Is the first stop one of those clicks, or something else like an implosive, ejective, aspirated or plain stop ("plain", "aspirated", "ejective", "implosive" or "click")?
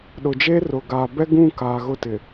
implosive